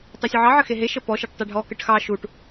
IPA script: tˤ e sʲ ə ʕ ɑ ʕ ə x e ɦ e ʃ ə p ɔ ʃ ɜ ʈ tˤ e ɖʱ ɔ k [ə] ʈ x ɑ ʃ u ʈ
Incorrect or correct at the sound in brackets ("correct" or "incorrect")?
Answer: correct